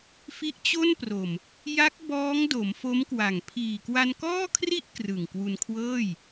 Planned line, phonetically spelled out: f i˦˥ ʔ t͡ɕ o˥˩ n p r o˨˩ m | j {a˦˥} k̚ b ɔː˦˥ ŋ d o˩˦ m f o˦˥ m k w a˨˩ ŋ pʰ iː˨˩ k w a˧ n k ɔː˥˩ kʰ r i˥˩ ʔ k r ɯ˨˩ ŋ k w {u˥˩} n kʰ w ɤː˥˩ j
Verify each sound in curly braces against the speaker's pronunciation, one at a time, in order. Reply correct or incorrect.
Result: correct, incorrect

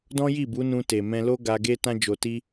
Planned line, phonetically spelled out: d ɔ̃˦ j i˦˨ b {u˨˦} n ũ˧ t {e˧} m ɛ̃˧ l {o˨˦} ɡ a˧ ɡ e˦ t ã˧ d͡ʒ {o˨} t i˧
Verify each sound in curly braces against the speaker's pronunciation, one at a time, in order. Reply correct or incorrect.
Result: correct, incorrect, incorrect, correct

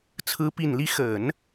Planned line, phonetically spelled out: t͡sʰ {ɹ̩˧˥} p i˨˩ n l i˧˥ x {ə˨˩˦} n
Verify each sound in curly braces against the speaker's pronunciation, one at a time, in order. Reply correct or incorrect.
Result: correct, correct

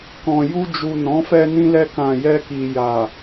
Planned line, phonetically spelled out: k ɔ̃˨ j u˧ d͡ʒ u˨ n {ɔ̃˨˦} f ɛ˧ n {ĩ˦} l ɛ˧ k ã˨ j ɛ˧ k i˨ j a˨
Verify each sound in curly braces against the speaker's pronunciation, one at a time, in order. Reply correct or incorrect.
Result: correct, incorrect

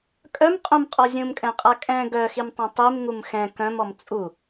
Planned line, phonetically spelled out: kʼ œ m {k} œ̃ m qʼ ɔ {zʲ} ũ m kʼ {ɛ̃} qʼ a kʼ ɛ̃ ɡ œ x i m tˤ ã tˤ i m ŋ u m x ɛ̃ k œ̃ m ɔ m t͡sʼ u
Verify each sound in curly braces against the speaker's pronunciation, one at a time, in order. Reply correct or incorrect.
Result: incorrect, correct, correct

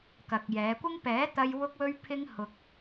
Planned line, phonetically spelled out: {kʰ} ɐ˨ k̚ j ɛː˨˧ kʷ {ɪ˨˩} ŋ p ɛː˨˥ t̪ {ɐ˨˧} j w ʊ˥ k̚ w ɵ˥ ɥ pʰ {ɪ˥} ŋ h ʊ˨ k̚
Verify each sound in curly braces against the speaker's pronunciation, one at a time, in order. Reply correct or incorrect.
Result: incorrect, incorrect, incorrect, correct

